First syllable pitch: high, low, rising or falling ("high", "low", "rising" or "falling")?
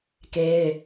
high